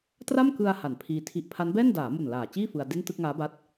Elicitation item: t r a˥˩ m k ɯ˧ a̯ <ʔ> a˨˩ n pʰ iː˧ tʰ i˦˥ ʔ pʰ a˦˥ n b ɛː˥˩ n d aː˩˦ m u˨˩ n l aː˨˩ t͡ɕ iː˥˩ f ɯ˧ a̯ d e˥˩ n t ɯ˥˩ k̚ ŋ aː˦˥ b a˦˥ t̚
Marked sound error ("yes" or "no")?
yes